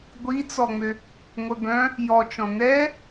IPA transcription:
ɡʷ i t͡s ɔ ŋ͡m ø | ŋʷ œ b œ̃ | j ɔ t͡ʃ ɔ̃ n ɛ

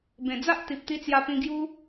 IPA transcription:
b ẽ˨˩ d͡z a˦ ʔ t̪ i˨ p̚ t̪ i˧ t͡s j a˧ p ĩ˧ ɡ j u˦

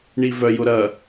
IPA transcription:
ɳ i v œ j ʊ ɾ ɐ

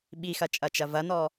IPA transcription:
ɓ i x ɐ t͡ʃʼ ɐ t͡ʃ ɐ v ɐ n ɔ

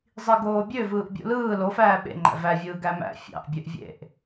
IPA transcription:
zˤ i ɡ oː bʲ ø v ɯː ʔ bʲ ṵ l ɯː l o f æː ɓ ḛ ŋ͡ǃ æ̰ v æ vʲ ɯː ɡ æ m æ̰ fʲ ɑ̰ ʔ bʲ ø ʔ vʲ ḛ ʔ

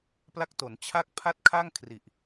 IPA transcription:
p l a˦˥ k̚ t o˩˦ n t͡ɕʰ a˥˩ k̚ pʰ a˥˩ t̚ kʰ a˥˩ ŋ kʰ r i˨˩ ʔ

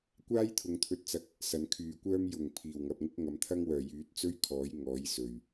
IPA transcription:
kʷ aː˥ j t̪ʰ ʊ˨ ŋ t̪ʰ ɵ˧ t̚ t͡s ɐ˧ k̚ | s ɐ˨˧ n kʰ yː˨ kʷ œː˥ m j ʊ˨˩ ŋ pʰ iː˨˩ w ŋ ɐ˨ p̚ ŋ ɪ˥ k̚ ŋ ɐ˨ m t̪ʰ ɐ˥ ŋ w œː˨˩ j yː˨˥ t̚ t͡s ɵ˥ ɥ kʰ ɔː˨˥ j ŋ ɔː˨˥ j s ɵ˨˩ ɥ

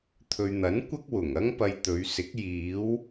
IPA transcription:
t̪ʰ ɵ˨ ɥ n̪ ɐ˨˥ n kʷ ɐ˥ k̚ w ʊ˨˩ ŋ ɐ˥ ŋ p ɐ˧ j t̪ ɵ˨˧ ɥ s ɪ˨˥ k̚ j iː˨˧ w

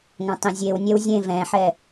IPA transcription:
ŋ ɐ̃ tˤ ĩ zʲ e w nʲ ɛ w zʲ ẽ v ɛ̃ ħ ɛ

